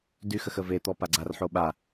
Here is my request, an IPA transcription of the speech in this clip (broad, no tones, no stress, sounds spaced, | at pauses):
d y x ə x ə v e t̪ ɔ p a ɡ͡ǀ a r ħ o ɓ a